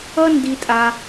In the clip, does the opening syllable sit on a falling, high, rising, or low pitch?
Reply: high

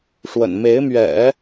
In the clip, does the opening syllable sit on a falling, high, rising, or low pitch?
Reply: low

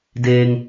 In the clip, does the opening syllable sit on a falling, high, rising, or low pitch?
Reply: low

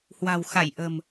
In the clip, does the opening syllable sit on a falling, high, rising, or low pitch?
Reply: low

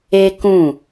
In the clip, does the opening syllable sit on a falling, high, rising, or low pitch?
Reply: high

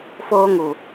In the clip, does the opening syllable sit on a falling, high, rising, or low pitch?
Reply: high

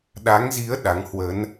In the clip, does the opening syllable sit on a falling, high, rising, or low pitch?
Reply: rising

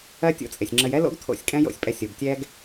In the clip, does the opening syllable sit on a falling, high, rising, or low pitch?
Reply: high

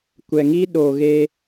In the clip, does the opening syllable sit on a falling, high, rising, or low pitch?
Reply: low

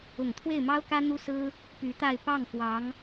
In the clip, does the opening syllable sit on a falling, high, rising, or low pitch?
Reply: low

